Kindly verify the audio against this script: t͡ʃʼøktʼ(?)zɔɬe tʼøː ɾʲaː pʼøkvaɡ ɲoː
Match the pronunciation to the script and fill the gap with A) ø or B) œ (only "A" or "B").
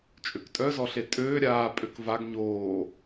B